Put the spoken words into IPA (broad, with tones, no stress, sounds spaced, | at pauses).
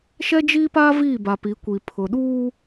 ʃ ɛ˦ d͡ʒ iː˦ p aː˦ v iː˦˨ b a˨ p i˨˦ kʷ i˨ pʰ ʊ˨ ɗ uː˦